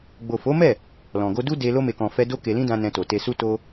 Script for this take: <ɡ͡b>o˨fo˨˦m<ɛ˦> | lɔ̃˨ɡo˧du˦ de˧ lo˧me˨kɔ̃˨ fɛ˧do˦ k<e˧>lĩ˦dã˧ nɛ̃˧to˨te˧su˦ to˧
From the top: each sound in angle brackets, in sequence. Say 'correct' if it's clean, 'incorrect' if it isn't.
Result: correct, incorrect: ɛ˦˨, correct

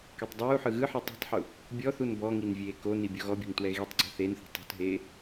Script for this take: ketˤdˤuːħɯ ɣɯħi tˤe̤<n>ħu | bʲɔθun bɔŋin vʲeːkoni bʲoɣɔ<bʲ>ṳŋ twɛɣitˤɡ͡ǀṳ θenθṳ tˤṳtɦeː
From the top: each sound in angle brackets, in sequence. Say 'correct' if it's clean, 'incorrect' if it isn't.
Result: incorrect: tˤ, correct

